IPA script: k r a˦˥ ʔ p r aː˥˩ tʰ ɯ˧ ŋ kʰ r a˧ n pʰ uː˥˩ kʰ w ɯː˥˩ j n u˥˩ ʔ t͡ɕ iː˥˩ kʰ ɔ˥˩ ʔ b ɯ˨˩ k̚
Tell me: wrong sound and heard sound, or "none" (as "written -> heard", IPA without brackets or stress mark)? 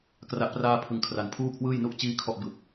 tʰ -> pʰ